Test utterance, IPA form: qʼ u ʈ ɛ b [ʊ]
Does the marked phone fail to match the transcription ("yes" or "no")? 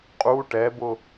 no